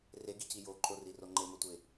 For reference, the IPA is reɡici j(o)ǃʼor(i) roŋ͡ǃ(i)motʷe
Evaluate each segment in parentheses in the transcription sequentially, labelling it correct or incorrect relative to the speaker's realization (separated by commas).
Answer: correct, correct, incorrect